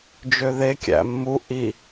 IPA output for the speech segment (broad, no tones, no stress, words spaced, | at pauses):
d͡ʒøðe kʲæ̰mːu ʔi